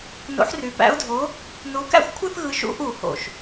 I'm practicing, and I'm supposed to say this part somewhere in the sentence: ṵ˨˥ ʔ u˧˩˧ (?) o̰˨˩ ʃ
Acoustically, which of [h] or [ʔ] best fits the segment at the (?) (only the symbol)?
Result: h